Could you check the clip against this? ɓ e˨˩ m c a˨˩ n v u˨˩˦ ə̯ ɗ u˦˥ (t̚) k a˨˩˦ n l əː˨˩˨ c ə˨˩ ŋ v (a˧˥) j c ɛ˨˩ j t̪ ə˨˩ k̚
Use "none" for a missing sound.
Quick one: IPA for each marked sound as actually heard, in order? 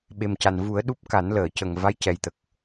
p̚, a˧˥

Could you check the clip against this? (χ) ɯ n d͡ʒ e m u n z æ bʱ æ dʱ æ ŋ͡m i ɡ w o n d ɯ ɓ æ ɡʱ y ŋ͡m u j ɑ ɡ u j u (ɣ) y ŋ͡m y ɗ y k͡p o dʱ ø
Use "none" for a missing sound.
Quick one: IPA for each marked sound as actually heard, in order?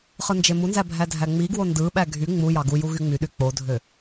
χ, ɣ

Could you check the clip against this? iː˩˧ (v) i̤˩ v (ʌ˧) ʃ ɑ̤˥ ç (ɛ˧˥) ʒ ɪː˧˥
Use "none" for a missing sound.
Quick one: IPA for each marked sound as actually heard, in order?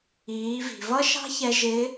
v, ʌ˥, ɛ˧

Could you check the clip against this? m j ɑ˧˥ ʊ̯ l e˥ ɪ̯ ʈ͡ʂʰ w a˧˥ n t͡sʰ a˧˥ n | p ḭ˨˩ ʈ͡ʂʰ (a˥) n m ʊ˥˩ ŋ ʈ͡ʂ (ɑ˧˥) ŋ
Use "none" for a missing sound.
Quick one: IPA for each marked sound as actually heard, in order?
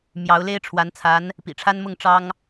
a˥, ɑ˥

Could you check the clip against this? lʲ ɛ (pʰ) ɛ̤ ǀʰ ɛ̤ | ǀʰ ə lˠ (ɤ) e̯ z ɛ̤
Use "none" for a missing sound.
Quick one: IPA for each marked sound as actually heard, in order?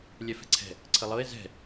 f, ɤ

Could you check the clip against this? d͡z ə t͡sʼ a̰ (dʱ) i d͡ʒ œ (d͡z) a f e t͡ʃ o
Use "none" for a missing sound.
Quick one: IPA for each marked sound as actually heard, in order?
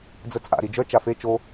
ɾ, t͡ʃ

